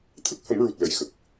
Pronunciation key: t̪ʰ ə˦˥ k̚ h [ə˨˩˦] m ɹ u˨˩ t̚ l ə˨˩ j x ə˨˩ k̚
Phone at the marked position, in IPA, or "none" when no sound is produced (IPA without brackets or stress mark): ə˨˩˦